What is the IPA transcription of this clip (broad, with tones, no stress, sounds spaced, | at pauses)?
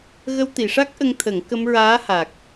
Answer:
ɣ ə˧ w t̪ i˨˩˨ ʂ a˦˥ k̚ ʔ ə˧ ŋ t̪ʰ ə˨˩˦ ŋ k ə˧ m ɹ aː˧˥ h a˨˩ k̚